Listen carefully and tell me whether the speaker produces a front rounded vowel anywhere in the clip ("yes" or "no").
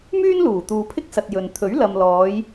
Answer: yes